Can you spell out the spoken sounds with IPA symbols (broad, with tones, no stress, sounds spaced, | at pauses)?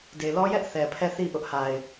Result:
d e˨ l ɔ˦ j ɛ˦ ʔ θ ɛ˨ pʰ ɛ˦˨ θ i˦˨ ʔ ʊ˦ ʔ h a˨ ɪ̯